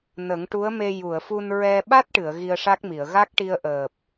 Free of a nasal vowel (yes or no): yes